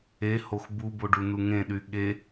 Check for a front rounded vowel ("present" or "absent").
present